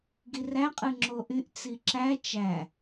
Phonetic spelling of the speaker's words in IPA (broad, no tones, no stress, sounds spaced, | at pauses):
ɡ i r æ qʼ ɯ ŋ͡ǁ o ʔ y ʔ t͡s i ǁ æ t͡ʃ æ